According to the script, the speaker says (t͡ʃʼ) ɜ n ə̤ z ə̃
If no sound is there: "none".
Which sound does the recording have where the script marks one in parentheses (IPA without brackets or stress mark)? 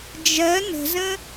d͡ʒ